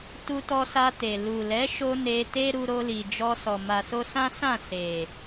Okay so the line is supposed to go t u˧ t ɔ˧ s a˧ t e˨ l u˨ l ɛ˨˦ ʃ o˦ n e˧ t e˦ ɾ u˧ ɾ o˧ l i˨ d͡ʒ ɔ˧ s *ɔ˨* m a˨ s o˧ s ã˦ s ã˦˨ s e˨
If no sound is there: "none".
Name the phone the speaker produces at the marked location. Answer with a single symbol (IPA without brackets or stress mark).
ɔ˨